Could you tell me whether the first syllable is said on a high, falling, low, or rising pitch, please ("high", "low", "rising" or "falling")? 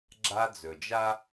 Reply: high